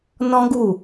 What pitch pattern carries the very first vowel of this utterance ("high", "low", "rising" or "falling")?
high